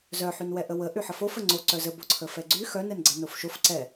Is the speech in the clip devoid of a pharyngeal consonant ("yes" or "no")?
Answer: no